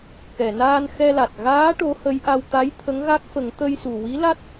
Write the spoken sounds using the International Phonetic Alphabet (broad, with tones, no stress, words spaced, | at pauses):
kɛ˨˩˨naː˧n xɛ˧la˨˩t̚ ɣaː˧˥ ʈo˧˥hə˧˥jʔa˧w t̪a˧˥jt̪ʰə˧˥ŋɣa˦˥k̚fə˨˩˦ŋ t̪ə˧jsu˨˩wi˧˥la˦˥t̚